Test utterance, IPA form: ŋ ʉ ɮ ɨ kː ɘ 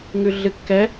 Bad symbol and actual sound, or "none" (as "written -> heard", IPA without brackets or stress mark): ɘ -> ɛ